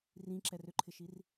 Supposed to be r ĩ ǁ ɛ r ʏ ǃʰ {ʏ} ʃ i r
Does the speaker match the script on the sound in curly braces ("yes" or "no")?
no